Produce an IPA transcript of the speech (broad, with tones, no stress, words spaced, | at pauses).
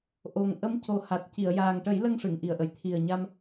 ʔo˨˩ŋ ʔə˧˥mco˨˩ ha˨˩t̚ci˨˩˨ə̯ jaː˨˩ŋʈə˨˩˦jlə˧ŋ ʂɨ˨˩˨ŋʔi˨˩ə̯ʔə˨˩j t̪ʰi˨˩ə̯ɲa˧m